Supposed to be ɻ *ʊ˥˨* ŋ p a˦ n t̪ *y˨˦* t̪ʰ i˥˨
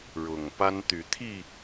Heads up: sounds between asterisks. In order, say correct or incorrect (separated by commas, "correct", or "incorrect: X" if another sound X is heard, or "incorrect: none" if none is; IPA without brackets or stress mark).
incorrect: ʊ˨˩, correct